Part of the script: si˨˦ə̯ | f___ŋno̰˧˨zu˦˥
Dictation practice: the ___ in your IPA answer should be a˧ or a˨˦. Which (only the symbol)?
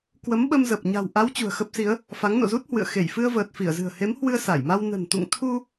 a˨˦